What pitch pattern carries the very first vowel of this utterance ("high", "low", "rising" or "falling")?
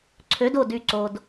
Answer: rising